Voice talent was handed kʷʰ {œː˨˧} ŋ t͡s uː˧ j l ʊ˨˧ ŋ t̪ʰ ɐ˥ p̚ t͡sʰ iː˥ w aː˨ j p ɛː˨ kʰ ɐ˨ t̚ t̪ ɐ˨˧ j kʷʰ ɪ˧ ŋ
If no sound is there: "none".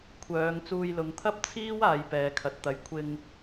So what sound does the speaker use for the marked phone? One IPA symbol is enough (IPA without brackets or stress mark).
œː˨˧